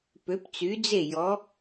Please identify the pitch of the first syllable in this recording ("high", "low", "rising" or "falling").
rising